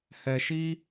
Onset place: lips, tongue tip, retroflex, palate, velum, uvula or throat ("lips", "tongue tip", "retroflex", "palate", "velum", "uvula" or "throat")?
throat